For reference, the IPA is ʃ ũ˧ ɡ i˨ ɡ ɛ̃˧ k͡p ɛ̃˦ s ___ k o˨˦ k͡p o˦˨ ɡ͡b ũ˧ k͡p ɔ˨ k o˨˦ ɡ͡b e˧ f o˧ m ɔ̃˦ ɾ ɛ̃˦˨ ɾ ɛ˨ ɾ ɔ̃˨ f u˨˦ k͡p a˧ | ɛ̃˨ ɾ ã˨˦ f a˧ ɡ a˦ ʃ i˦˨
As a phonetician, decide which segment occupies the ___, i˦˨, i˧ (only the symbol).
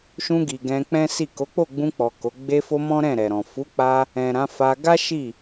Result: i˦˨